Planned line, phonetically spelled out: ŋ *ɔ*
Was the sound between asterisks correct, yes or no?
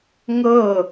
no